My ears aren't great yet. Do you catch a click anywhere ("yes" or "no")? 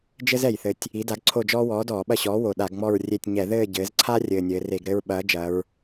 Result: yes